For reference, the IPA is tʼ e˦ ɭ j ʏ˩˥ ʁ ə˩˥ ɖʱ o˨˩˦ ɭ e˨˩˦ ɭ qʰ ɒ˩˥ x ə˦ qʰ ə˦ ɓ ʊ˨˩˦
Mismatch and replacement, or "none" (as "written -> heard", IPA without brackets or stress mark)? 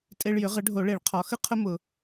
ɓ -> m